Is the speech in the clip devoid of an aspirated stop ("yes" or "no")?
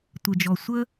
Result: yes